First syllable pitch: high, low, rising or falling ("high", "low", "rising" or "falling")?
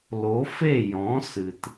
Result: rising